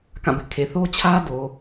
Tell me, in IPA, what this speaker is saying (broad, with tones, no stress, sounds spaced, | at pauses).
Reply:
k ã˦˨ b ɪ˦ ʔ kʰ e˨ θ o˦ t͡ɕʰ ä˦ d o˨